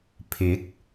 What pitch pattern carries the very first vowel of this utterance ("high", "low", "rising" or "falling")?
rising